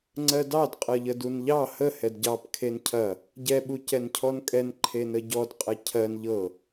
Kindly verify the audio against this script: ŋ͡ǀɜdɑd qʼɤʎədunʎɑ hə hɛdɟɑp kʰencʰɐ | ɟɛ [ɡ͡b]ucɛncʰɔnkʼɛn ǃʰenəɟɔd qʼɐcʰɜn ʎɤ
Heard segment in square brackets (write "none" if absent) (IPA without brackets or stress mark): ɓ